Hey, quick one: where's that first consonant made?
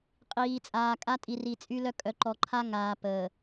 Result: uvula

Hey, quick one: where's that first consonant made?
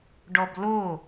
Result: retroflex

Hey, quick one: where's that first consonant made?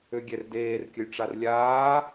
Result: velum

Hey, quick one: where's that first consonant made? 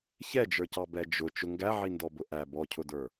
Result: palate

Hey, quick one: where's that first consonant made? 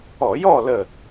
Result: palate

